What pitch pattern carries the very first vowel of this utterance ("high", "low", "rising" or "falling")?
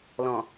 low